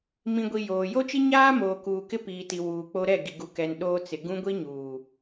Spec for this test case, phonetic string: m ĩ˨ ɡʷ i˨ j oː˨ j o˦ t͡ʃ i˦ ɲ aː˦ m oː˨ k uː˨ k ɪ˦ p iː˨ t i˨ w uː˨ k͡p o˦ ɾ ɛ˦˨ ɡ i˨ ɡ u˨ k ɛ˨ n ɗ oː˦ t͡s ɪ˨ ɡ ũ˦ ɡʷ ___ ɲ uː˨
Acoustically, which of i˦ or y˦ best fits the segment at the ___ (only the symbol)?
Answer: i˦